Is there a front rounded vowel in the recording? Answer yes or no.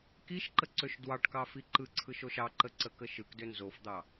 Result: yes